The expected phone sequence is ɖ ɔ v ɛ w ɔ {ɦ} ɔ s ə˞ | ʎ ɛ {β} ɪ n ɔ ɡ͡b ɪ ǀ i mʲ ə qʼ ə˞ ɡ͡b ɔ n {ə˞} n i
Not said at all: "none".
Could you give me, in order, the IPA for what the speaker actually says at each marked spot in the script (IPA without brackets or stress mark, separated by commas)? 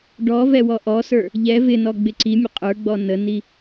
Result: ʔ, v, ə